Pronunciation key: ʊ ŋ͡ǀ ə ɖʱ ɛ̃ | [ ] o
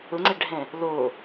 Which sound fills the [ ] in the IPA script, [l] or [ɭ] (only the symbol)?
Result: l